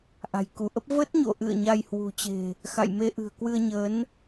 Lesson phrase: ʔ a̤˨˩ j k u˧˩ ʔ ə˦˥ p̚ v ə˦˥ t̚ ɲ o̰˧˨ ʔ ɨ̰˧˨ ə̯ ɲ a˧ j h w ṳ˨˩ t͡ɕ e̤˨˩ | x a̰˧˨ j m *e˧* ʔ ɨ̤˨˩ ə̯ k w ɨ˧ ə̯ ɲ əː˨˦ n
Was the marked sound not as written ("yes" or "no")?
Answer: no